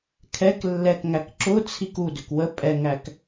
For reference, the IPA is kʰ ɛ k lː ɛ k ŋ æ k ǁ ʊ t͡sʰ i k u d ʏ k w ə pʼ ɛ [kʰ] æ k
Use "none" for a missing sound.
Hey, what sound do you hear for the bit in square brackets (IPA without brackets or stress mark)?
ŋ